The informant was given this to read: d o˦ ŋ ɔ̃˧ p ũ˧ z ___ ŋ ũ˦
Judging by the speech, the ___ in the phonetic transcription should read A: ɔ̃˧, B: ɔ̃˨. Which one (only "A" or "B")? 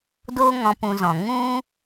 B